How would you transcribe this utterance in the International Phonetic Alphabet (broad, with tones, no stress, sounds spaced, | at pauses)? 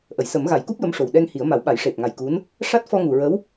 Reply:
ʔ ə˨˩˨ j s ə˨˩˦ m ɣ a˨˩˦ j k u˦˥ p̚ j ə˧˥ m ʂ o˨˩ w ɗ ɛ˧ ŋ h i˨˩˦ ə̯ m a˨˩˦ w ɓ a˨˩˦ j ʂ e˨˩ p̚ ŋ a˨˩ j k u˧˥ n | ʂ a˦˥ t̚ f ɔ˧ ŋ u˨˩ ɹ ə˧˥ w